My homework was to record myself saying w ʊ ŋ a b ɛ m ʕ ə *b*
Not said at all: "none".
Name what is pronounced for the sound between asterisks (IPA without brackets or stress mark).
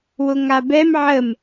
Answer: m